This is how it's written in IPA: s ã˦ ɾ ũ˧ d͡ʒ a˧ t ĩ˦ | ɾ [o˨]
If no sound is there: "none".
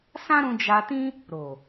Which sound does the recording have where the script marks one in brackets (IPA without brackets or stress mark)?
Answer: o˨